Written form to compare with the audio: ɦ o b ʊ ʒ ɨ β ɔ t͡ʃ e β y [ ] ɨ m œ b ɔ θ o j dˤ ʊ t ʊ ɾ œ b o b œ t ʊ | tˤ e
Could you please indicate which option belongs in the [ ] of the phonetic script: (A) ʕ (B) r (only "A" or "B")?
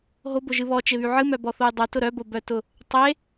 A